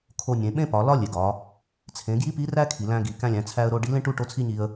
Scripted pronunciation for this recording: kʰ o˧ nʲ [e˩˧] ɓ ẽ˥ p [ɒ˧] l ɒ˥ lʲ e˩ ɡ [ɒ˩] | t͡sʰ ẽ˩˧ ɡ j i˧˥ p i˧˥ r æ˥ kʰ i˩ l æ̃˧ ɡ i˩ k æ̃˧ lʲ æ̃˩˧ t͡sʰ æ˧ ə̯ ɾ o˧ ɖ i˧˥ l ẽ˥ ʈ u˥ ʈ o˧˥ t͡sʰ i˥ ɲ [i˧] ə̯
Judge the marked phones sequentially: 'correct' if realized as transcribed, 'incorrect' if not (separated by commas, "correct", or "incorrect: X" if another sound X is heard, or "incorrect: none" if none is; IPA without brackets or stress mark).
incorrect: ẽ˩˧, incorrect: ɒ˩˧, incorrect: ɒ˩˧, correct